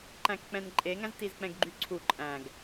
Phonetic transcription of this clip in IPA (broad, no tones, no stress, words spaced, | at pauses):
ǃæ̃kk͡pɛ̃nǃʼeŋæ̃z tizk͡pɛ̃ɡɡ͡ǃyǀʰu ǃʼæ̃ɡ